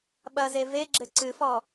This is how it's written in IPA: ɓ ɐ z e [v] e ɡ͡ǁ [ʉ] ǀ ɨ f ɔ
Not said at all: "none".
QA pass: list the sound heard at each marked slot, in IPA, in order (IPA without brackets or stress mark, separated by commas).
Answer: v, ɘ